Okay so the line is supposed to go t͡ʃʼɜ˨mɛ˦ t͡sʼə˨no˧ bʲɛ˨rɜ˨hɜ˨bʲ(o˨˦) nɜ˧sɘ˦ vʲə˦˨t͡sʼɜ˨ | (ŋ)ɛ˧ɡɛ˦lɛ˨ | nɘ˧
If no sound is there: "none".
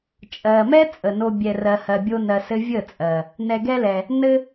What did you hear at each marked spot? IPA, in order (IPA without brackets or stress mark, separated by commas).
o˧, n